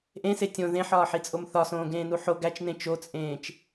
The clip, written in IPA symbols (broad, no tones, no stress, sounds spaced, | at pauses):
ʔ ẽ s e tʲ õ ð ẽ ħ ɒː ħ i t͡sʼ o m θ ɒ s õː ɡ ẽː n u ħ o ɡ æ t͡ʃ n ẽ t͡ʃ o t͡sʼ ẽː t͡ʃ